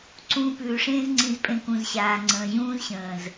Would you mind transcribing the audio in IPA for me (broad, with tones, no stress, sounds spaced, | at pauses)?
ǀ ũː˧ p ʉː˨ ʂ ẽː˦ z ŋ͡ǀ ĩ˧ z pʼ ẽ˧ k ũ˨ z ɕ aː˨ ŋ͡ǀ ə̃ː˨ ʑ ũː˦ z ɕ ə̃ː˨ z